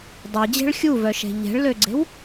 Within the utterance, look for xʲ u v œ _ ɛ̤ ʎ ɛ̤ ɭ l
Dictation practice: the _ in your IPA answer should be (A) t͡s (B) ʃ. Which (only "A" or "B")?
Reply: B